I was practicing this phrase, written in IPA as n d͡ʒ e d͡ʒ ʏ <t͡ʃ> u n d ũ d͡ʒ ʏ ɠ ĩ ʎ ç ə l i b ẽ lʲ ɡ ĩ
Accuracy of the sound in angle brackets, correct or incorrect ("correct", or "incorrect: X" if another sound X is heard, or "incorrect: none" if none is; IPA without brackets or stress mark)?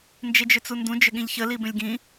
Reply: incorrect: t͡s